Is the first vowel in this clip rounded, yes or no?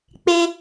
no